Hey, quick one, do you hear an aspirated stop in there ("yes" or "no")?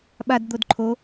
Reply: yes